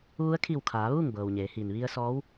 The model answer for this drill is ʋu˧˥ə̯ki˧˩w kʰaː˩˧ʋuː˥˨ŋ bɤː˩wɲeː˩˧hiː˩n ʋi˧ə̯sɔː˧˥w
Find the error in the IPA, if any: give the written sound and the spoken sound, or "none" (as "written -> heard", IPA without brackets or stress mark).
k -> kʰ